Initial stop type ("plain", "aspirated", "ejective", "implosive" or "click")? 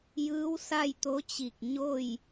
plain